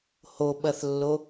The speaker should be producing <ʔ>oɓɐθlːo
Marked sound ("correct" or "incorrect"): incorrect